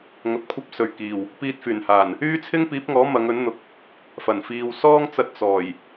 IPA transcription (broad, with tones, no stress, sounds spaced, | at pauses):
ŋ ɐ˨˥ p̚ kʷʰ ɐ˥ p̚ s ɵ˨ ɥ k iː˨˩ w | p iː˧ t̚ f yː˨˩ n h aː˨˩ n | yː˥ t͡sʰ ɪ˥ ŋ p iː˨˥ p̚ ŋ ɔː˨˥ m ɐ˨˧ ŋ ɵ˨˥ n n̪ ʊ˨ k̚ | f ɐ˨˩ n f iː˨ w s ɔː˥ ŋ t͡s ɐ˧ t̚ t͡s ɔː˨˩ j